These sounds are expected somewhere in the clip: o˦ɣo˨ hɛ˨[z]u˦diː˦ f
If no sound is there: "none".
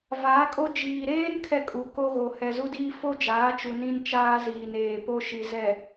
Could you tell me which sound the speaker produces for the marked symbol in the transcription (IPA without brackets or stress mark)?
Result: z